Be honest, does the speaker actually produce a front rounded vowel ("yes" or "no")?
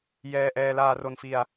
no